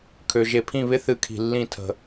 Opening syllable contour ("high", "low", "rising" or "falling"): low